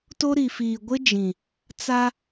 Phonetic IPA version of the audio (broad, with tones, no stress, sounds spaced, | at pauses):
t o˦ ɾ i˨ f iː˨ ɡʷ ɪ˦ d͡ʒ ĩ˨ | t͡s a˦